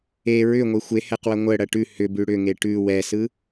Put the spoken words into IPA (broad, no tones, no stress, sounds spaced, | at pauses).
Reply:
e ɹ ʏ ŋʷ e xʷ e h ɛ q w ɐ ŋʷ ə ɽ ɐ ʈ ʉ h ʏ b ʉ ɽ ʏ ŋ e ʈ ʉ w ɛ s ɯ